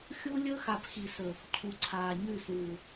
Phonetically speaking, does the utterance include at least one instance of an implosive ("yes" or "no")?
no